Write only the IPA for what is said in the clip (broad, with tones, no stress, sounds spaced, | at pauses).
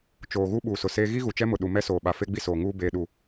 t͡ʃ oː˨ ɣ u˦ ɓ uː˨ s ʊ˨ s eː˦ ɣ i˦ ɣ u˨ t͡ʃ ɛ˦ m ʊ˨ ɗ u˨ m ɛ˦ s oː˨ ɓ a˨ f e˦ ɡ͡b i˦ s oː˨ ŋ uː˦ b eː˦ ɗ u˦